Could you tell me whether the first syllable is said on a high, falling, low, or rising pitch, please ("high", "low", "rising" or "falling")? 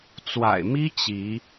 low